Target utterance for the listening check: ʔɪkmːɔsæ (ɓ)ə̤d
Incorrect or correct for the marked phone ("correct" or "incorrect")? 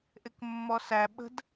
correct